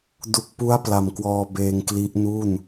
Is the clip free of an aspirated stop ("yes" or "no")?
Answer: yes